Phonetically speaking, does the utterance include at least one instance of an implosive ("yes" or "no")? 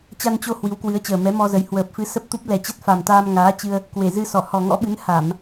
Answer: yes